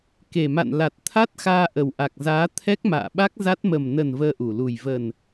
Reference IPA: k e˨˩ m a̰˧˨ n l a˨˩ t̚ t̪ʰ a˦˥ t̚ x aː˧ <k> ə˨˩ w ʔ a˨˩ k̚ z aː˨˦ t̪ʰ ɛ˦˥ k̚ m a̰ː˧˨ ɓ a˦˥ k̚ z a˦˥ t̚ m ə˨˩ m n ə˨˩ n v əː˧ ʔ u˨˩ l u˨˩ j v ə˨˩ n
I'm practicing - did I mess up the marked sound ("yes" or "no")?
yes